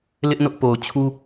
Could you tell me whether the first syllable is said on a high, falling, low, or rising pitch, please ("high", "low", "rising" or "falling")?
high